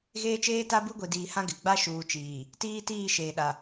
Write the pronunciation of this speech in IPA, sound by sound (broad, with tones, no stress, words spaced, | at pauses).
ɣeː˦t͡ʃeː˦ta˦ bu˦ɡʷi˨ diː˨hã˦ ɡɪ˨ ɡ͡ba˦ ʃuː˨ t͡ʃiː˨ | tiː˦tiː˦˨ ʃeː˨ɗa˨